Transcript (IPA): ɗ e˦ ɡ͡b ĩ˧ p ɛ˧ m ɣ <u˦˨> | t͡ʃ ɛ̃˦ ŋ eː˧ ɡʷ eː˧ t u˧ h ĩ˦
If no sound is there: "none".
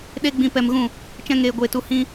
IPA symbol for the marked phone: ũ˦˨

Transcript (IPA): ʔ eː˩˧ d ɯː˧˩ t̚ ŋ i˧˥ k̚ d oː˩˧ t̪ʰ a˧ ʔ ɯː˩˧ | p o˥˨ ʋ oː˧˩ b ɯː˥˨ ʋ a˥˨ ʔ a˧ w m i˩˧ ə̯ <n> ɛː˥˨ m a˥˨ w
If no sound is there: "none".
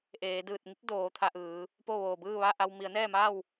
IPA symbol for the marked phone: n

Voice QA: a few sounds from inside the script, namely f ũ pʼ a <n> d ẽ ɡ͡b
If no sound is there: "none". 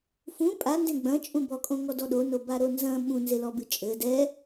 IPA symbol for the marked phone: n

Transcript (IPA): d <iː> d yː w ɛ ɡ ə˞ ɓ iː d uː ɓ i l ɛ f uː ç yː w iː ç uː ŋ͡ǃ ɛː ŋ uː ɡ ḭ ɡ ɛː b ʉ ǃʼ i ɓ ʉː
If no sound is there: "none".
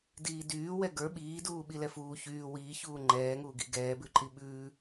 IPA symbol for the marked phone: iː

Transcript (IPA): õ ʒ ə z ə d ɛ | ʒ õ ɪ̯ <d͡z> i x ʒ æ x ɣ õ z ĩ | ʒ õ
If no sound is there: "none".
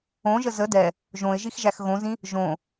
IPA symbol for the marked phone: ʒ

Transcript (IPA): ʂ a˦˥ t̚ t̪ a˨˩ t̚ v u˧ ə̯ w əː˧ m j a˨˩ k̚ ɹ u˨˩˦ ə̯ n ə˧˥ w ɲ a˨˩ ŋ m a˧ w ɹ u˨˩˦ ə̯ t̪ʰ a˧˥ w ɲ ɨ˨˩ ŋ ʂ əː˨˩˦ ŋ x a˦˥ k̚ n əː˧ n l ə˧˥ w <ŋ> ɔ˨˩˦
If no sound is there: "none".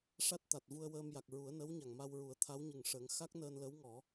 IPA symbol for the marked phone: ŋ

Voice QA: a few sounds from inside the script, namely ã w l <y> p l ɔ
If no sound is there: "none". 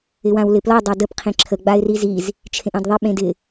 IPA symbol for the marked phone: ɪ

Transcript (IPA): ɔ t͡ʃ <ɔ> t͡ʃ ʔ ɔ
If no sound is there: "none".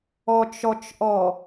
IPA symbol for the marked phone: ɔ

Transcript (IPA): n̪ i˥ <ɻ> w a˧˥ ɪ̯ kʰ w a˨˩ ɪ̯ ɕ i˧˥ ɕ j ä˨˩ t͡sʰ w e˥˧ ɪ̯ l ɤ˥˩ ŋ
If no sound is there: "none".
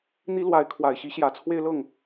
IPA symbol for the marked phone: l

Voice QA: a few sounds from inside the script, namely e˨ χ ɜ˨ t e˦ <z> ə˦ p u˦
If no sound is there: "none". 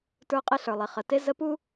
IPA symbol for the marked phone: z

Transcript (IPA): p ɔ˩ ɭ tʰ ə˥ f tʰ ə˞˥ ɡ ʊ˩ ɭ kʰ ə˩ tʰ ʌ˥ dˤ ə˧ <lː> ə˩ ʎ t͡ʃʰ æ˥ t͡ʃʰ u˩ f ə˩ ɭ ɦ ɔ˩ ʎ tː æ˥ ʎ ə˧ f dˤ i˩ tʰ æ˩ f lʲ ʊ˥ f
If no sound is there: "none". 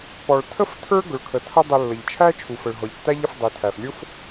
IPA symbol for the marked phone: lː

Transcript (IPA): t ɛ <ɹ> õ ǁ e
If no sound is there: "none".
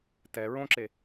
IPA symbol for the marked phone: ɹ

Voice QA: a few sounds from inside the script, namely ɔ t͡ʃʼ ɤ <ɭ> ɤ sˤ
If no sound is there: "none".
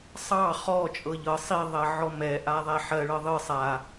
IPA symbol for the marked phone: ʎ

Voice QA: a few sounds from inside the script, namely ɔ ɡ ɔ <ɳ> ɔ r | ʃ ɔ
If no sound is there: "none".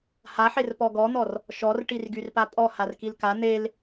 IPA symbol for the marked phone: n̪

